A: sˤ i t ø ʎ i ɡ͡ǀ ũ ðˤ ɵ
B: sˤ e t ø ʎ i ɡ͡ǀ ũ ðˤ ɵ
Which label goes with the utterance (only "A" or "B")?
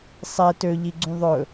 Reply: B